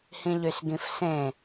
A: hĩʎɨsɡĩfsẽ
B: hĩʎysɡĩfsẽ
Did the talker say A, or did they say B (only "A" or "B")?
B